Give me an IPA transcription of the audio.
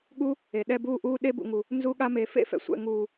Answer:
ɠ u˦ | e˨ ɗ ɛ˧ b uː˧ ʔ uː˧ ɗ e˧ b ṵ˨ ŋ u˨ | n z u˧ ɠ a˧ m e˨ f ḛ˦ f ɛ̰˨ sʷ ɛ̰˨ ŋ uː˨

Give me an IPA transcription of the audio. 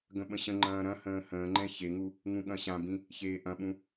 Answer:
ɡ ə̃ ɓ ə̃ ɕ ə̃ ŋ͡ǃ ɐ̃ː ɾ ɐ̃ h ə̃ː h ə̃ː ŋ͡ǃ ɛ̃ ç e ŋ u | ŋ ũ ɠ ɐ̃ ɕ ã b ĩ | ç eː ʔ ɐ̃ ɓ ũ

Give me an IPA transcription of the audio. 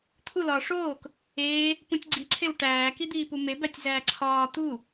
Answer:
t̪ʰ u l ɒː ʂ oː k | eː | p ũ tʲ ɡ͡ǀ i ǀʰ e w ʈ æː k i d̪ iː p u m e b æ tʲ z æː ǀʰ ɒː t̪ u

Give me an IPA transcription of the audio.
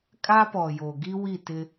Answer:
kʼ a˦ p ɔ˨ j o˨ ɡ i˦ w i˦˨ t ɪ˦

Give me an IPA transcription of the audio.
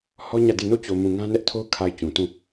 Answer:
h ɔ˦ ɲ ä˦˨ d e˦˨ n o˦˨ t͡ɕ o˨ m ũ˨ ŋ ã˦ n ɛ˦ ʔ tʰ o˦ ʊ̯ kʰ a˨ ɪ̯ t͡ɕ ũ˨ t ũ˦˨

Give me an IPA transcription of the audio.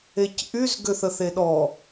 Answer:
e c ʔ y z ɡ ʏ θ ə θ e ɗ ɔ

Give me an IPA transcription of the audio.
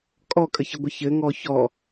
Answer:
kʼ ɔ kʼ ə ç ə ɡʷ ɘ ç ɘ ŋ ɔ ç ɔ

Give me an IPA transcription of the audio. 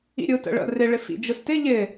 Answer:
ḭ ɾʲ ɯ t ə̰ ɭ ə̰ r ɪ ɭ ɪ f ḭ d͡ʒ ɯ s t ɪ ʎ ɪ

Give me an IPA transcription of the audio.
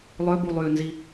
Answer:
lˠ ø b u lˠ yː n z i

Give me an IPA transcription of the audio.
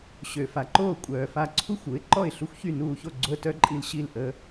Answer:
ɕ ø˩ f a˩ ǃ oː˧˩ kʷʼ œː˩ f a˧˩ ǀʰ u˦˥ xʷ u˩˥ ɪ̯ ǃ ɔ˥˩ ɪ̯ ɬ u˦˥ xʷ ç y˥˩ n uː˧˩ ç o˥˩ ɡ͡ǀ o˧ ə̯ t œ˦˥ ǃʼ i˧ l ɕ i˥˩ l ʔ ə˦˥

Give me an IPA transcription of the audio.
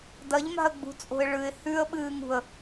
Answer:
d ɐ ʎ m a̤ ə̯ ɡ͡b ṳ t͡sʼ o̤ ɪ̯ ɭ ɨ ɪ̯ h ʉ ə̯ ɓ ɨː ŋ ṳ ə̯

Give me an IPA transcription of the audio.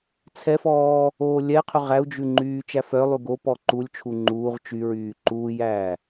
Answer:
t͡sʰ ɛ f ɔː | oː lʲ ɛ qʰ ɵ ʁ æ u̯ d͡ʒ ʉ ŋ͡ǃ yː t͡ʃ æ f œ lˠ y ɡ o p ɔ ǃ u lʲ t͡ʃʰ u ŋ͡ǃ uː ʁ t͡ʃ y ɹ yː ǃ uː j æː

